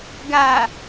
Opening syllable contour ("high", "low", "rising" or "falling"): low